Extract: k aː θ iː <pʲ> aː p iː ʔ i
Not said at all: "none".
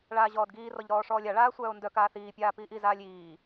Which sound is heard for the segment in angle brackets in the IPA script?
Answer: pʲ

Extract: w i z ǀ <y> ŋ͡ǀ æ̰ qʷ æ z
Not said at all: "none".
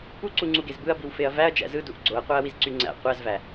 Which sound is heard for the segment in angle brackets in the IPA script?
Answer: y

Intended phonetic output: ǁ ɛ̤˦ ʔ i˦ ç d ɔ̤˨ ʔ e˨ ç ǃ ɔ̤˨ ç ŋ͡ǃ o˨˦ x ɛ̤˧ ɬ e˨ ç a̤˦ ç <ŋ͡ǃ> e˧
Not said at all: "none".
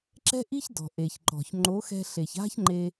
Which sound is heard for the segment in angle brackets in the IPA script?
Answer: ŋ͡ǃ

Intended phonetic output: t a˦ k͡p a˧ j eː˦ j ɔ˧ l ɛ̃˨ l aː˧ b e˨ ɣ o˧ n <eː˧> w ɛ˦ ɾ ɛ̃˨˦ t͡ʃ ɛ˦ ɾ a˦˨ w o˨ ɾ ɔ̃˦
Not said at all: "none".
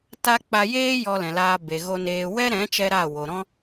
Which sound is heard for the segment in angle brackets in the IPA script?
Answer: eː˧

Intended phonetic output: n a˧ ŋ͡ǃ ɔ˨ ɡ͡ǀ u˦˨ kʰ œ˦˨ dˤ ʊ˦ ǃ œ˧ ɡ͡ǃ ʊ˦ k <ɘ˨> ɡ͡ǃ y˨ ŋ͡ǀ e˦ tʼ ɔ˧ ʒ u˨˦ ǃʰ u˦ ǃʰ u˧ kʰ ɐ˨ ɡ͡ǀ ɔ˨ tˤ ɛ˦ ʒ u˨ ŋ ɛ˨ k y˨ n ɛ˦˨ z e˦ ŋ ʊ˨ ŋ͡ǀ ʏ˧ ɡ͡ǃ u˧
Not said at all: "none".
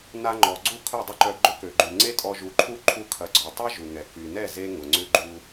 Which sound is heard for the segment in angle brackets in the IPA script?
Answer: ø˨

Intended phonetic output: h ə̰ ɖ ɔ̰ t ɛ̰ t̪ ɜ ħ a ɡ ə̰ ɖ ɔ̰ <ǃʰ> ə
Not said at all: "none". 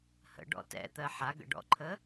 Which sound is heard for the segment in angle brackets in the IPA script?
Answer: ǃʰ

